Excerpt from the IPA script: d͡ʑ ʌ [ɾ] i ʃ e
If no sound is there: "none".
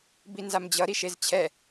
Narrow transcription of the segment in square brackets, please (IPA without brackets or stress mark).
ɾ